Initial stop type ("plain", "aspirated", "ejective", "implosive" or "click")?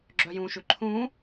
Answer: click